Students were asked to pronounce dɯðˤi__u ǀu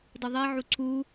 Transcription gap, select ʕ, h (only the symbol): ʕ